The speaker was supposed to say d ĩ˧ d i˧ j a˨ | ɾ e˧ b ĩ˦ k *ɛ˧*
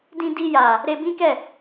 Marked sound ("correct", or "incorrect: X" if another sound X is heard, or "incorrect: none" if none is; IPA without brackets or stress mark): incorrect: ɛ˦˨